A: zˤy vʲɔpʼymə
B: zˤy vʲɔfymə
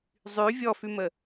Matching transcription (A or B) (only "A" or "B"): B